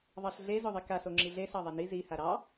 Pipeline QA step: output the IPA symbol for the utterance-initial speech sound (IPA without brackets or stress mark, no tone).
ðˤ